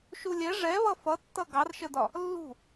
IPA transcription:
ʃulʲɛ ʐɛβʌ fʌtːʌ ɡɑrʃədɒ | lːṳ

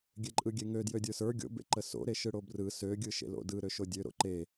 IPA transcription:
ɡʲeǃʼɯɡʲeŋø djødʲə˞sə˞ ɡʲo̰ bḛǃəso̰ ɾeʃɯɽobrɯ sø ɡʲɯʃḛlo̰dɯ ɾøʃodʲø ɾo̰ǃe

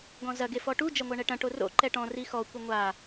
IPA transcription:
ɡɔ̃zɐ ɡefɔʈu d͡ʒɐŋʷaɳɛʈɐ̃ ʈoro̰ ǃɛʈɔ̃ rixɔ kʷɘŋʷa

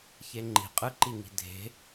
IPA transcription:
çeŋ͡ǃi̤ qʼɯǃiŋi̤ dʱe̤

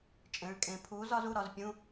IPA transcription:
t͡ʃʼẽ˨˥ɭkʼẽ˨˥ pʰuː˨˥zɒ˨˥z u˧˥˧ ɾɒ˨˥z pʲũ˧˥˧

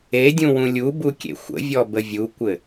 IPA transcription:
edʲũwũ lʲubukʲḛ xʷə̰vʲɔbə vʲukʷɘ

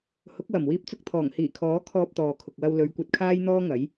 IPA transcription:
hʊ˨˥k̚wɐ˨˩m wiː˧p̚t͡sʊ˧k̚t̪ʰɔː˨˩ŋ hiː˨˩kʰɔː˨˥ kʰɔː˧p̚t̪ɔː˨kʰʊ˨k̚wɐ˧w lɵ˨˧ɥkʷɐ˧t̚kʰaː˥j n̪ɔː˥ŋɐ˨˥j

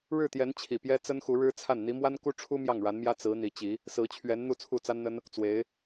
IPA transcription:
ɻɻ̩˥˩t̪jɛ˧˥n t͡ɕʰi˨˩pjɛ˥ t͡sə˥nxu˧˥ɻɻ̩˥t͡sʰa˥˩n n̪i˧˥mwa˥nku˥ʈ͡ʂʰu˥ mjɑ˥˩ŋɻa˧˥nmjä˥ t͡sɹ̩˧˥ n̪i˧˥ t͡ɕi˧˥ | sɹ̩˧˥t͡ɕʰɥɛ˧˥n n̪u˥˧t͡sʰu˥˩t͡sa˥nn̪ə˥n | t͡swe˧˥ɪ̯

